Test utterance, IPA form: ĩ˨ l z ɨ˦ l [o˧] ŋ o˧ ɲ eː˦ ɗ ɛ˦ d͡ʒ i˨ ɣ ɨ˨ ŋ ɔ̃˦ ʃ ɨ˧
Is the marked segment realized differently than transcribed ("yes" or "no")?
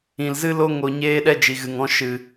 yes